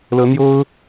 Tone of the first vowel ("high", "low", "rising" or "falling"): rising